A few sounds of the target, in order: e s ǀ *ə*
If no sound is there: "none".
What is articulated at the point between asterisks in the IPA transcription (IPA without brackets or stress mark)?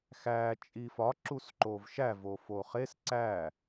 æ